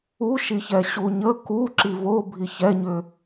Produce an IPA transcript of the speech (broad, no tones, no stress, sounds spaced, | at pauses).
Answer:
u ʃ i ç ɛ ɕ u ɲ ə k u ǁ i v o bʱ i ç ɛ ɲ ʏ